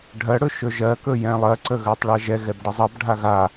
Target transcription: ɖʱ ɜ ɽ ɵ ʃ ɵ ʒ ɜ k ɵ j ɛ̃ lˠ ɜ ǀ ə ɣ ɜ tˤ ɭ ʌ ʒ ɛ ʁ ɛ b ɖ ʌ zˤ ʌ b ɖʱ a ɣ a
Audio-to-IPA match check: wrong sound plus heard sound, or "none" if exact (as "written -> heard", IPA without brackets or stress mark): ʁ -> ɣ